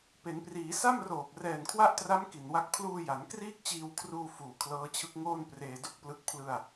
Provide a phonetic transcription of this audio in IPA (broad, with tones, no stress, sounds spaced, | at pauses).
p e˩˦ n p r iː˩˦ s a˥˩ m r oː˨˩ p̚ r ɛː˨˩ n kʰ w a˦˥ ʔ t r a˦˥ m k i˨˩ n w a˥˩ k̚ pʰ l uː˧ j a˩˦ n k r iː˥˩ k̚ t͡ɕ iː˧ w kʰ r uː˧ f uː˨˩ kʰ l ɤː˦˥ t͡ɕʰ ɯ˦˥ k̚ ŋ oː˥˩ n p r eː˧ d o˥˩ k̚ p l ɯ˦˥ k̚ pʰ l ɯ˧ a̯